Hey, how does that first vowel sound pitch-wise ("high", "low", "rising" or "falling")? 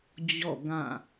falling